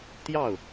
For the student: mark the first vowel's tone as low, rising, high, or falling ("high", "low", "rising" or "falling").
falling